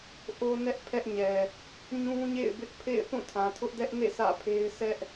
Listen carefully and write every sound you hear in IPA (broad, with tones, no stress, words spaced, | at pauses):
ʔo˦nɛ˦ʔ pʰɛ˦ʔɲɛ˨ | ɲũ˦ɲḛ˦˨ɪ̯bɪ˦ʔ pʰḛ˦˨ɪ̯θũ˦˨ tʰã˨tʰʊ˦ʔdɛ˦ʔnḛ˦˨ sä̰˦˨pʰe˦ɪ̯ sʰɛ˦ʔ